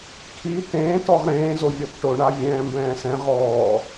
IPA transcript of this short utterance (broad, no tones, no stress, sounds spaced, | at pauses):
kʰ i t ẽː t ɔ ʁ ɾ ẽː z o vʲ ɔ t ʈ o ɳ a vʲ ɛ̃ː m b ɛ̃ː s ɛ̃ ʁ ɔː